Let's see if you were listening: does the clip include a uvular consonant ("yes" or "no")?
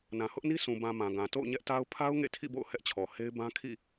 no